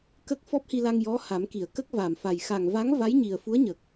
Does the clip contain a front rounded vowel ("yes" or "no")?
no